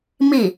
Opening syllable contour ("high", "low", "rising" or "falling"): falling